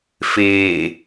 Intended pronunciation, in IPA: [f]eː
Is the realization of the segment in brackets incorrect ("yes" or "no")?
no